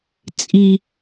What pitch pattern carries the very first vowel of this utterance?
high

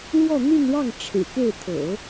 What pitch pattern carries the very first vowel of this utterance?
falling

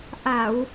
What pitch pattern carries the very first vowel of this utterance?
low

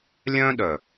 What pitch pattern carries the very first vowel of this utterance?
high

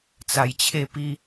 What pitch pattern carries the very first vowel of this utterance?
low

